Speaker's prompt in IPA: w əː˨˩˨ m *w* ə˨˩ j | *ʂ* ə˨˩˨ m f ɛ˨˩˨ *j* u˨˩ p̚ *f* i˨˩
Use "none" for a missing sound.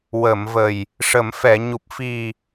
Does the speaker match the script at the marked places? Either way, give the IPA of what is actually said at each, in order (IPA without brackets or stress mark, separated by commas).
v, ʂ, ɲ, f